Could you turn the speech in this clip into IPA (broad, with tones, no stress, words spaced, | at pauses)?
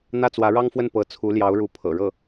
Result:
n̪ä˥˩t͡swä˧˥ɻɑ˥ŋfwə˥˩n pɤ˧˥ t͡sʰu˧˥ljɑ˧˥ʊ̯ɻu˧˥ pʰɤ̰˨˩ɻɤ˥˩